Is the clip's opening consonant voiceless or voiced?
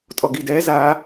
voiceless